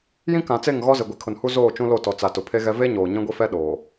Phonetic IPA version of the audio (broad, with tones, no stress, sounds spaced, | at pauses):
j ĩ˦ k ã˨ t͡s e˦˨ ŋ ɣ ɔ˦ z ɪ˨ ɡʷ i˨ kʰ ʊ˨ n h u˦ z oː˦˨ t͡ʃ ũ˦ l o˦˨ t ɔ˨ t͡s a˨ t ʊ˨ pʰ e˦ ɣ ɛ˦ v e˦ ɲ oː˨ ɲ ĩ˦ ɡʷ i˦ f ɛ˦ ɗ oː˨